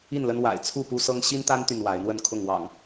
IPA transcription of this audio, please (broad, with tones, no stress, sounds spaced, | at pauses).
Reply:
i˥˨ n l ə˦ n w a̰˨˩ ɪ̯ t͡sʰ u˥˨ p u˦ s ɤ˦ ŋ ɕ i˦ n t̪ a˦ n t̪ y˨ n w a˨˦ ɪ̯ n̪ w ə˥˨ n kʰ ʊ˥˨ ŋ w ɑ̰˨˩ ŋ